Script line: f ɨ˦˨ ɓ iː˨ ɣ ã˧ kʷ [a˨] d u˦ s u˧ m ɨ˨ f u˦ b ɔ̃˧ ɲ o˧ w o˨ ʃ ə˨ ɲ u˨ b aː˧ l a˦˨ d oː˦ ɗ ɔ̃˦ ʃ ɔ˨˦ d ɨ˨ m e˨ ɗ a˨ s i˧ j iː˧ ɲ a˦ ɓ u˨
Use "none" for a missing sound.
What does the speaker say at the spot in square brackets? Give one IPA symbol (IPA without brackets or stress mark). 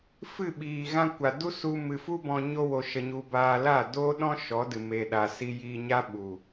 a˨